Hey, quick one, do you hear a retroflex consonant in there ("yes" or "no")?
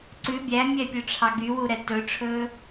yes